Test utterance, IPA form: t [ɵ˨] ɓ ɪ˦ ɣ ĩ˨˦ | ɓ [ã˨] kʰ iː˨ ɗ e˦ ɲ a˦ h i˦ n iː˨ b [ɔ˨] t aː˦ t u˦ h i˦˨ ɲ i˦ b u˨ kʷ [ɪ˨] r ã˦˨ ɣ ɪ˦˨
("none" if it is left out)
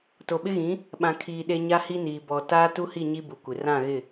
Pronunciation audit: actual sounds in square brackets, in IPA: o˨, ã˨, ɔ˨, ɪ˨

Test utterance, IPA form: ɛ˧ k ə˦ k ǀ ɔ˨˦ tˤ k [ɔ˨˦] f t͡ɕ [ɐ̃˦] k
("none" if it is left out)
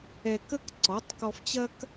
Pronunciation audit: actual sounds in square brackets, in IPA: ɔ˧, ɐ˦

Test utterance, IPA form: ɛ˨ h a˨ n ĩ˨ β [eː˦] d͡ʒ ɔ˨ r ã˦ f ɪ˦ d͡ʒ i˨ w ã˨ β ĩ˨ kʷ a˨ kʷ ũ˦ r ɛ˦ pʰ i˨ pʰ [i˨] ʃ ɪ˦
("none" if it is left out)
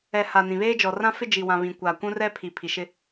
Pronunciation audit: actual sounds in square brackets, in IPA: eː˦, i˨

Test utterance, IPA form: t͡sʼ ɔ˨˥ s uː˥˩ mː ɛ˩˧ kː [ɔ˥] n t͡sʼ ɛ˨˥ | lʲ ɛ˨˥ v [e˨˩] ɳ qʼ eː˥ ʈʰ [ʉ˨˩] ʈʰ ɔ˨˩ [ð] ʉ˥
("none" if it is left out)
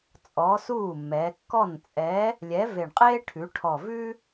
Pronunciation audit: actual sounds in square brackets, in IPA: ɔ˥˩, e˨˩, ʉ˩˧, v

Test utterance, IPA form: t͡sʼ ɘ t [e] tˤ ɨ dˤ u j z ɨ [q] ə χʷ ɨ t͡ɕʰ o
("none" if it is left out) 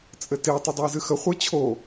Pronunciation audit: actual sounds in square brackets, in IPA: e, x

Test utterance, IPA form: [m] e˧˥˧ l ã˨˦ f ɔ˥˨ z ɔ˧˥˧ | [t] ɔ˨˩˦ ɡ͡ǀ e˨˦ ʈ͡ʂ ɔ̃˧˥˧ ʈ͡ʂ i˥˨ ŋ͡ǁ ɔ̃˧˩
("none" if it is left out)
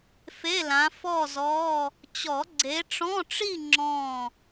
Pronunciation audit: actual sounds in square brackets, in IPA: f, t͡ɕ

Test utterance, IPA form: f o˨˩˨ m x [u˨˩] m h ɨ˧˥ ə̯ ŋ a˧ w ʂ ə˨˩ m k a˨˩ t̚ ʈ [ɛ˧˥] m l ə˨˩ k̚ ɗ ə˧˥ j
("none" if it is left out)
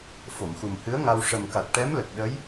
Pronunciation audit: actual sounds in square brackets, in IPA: u˨˩, ɛ˧˥

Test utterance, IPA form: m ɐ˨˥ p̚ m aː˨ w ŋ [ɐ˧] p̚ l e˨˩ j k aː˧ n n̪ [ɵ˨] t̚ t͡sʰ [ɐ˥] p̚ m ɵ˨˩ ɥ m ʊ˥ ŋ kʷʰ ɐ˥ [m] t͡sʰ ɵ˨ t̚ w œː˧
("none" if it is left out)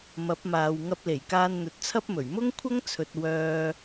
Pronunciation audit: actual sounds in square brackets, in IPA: ɐ˧, ɵ˨, ɐ˥, ŋ

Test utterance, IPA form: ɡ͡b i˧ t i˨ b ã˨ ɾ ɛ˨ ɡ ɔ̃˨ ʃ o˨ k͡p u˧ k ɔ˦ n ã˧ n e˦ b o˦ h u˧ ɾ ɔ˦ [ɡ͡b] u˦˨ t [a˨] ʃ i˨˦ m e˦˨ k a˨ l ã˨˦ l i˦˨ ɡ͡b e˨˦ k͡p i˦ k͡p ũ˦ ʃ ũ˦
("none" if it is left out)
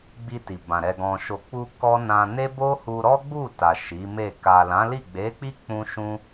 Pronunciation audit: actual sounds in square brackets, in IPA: ɡ͡b, a˨

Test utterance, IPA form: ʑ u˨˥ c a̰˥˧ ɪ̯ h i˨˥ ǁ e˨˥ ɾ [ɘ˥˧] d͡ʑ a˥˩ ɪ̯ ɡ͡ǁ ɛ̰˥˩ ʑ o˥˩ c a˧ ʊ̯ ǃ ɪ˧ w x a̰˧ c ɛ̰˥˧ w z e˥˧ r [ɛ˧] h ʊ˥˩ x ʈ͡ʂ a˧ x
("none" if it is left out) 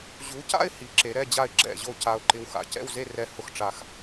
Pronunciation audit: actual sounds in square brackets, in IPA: ɛ˥˧, ɛ˧

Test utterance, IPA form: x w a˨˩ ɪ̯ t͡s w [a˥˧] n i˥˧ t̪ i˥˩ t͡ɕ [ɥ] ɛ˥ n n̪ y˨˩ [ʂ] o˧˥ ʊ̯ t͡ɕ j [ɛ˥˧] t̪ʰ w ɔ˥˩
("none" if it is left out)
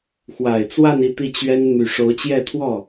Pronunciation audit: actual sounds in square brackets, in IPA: a˥˧, ɥ, ʂ, ɛ˥˧

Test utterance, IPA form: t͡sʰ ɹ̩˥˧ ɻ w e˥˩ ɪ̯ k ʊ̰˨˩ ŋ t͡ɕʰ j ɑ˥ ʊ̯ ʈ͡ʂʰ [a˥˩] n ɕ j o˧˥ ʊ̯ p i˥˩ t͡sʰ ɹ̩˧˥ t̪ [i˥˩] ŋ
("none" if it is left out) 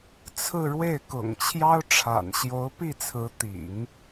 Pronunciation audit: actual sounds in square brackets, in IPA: a̰˨˩, ḭ˨˩˦

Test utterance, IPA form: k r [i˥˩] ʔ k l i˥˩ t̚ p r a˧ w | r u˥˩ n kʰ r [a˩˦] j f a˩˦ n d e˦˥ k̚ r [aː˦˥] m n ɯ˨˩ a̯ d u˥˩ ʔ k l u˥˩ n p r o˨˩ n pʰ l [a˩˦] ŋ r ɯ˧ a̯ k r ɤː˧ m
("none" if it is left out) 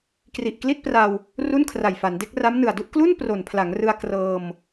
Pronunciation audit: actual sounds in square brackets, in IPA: i˨˩, a˨˩, a˦˥, a˩˦

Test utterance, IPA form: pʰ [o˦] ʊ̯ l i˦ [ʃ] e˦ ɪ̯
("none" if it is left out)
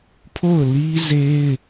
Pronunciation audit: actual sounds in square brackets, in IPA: o˦˨, z

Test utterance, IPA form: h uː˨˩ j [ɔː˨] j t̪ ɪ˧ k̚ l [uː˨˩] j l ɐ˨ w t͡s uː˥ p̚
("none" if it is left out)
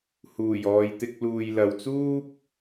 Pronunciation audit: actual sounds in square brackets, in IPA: ɔː˨, uː˨

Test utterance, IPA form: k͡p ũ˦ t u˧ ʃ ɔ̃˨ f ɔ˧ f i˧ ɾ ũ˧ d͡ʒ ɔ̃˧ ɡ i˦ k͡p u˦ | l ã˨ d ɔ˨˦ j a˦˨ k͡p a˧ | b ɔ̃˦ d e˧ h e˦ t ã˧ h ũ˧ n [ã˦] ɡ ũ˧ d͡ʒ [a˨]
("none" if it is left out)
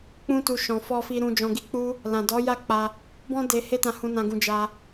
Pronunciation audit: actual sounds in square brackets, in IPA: ã˧, a˧

